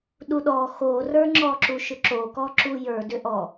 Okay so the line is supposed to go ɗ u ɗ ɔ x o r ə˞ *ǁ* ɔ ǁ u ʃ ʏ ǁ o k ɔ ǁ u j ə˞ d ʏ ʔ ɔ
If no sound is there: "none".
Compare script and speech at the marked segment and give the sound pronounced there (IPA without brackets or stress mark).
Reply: ŋ͡ǁ